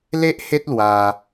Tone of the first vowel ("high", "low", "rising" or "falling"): high